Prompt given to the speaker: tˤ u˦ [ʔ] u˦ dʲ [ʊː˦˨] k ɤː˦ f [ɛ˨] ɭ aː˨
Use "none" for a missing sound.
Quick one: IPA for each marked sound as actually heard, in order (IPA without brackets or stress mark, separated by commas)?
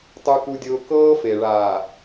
k, ʊː˦, e˨